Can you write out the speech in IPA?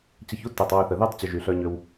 t͡ɕ ə˧ ç u˦ t e˨ tˤ w ø˧ θ ə˨ ð y˦ tˤ t͡ɕ y˨ ʒ y˨ ɬ œ˧ ɲ ø˧ w

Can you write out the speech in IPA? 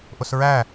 ʔ ʊ s ɹ æ

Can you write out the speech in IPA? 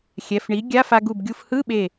xʲ ɛ˩˧˩ f ɳ i˩˥ ɡʲ a˧˥˧ f a˧ ɡ u˧˩ b ɡʲ u˧ f h ɯ˧˥˧ ɓ e˧˩

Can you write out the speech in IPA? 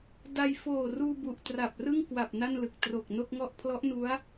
d a˧ j f oː˨˩ r uː˧ b u˨˩ ʔ t r a˨˩ p̚ r ɯ˥˩ ŋ k w a˨˩ p̚ n a˥˩ n l ɯ˨˩ k̚ t r o˨˩ k̚ n o˥˩ k̚ ŋ ɔ˥˩ ʔ pʰ l ɔ˦˥ ʔ n u˦˥ a̯

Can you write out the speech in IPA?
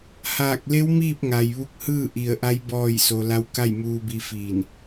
h aː˧˩ k̚ l e˧˥ w m iː˥˨ p̚ ŋ a˩ j ʋ u˧ k̚ h ɯː˥˨ ʔ i˧˩ ə̯ ʔ a˧˥ j b ɔː˥˨ j s o˧ l a˧ w k a˥˨ j m uː˧ b i˧ f iː˧˩ n

